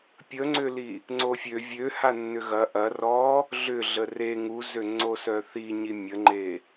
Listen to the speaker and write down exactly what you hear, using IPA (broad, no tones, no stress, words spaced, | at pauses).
pʲəŋ͡ǀʏli | ŋ͡ǀofʲø vʲøha nːʏɣɐ ʔɐ rɔ | ɮʏ ɮəre ŋuzøŋ͡ǀo sœθiɲi mʲəŋ͡ǃe